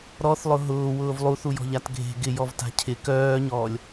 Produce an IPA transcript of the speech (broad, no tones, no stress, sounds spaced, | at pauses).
ɾ ɔ θ lˠ ʊ ɦ ʊː w ʊː v lˠ u θ u j ɔ̤ ʎ a t ɡʱ e̤ ɡ ɪ j ɔ v t a̤ cʰ ɪ k œː ɲ ɔː lʲ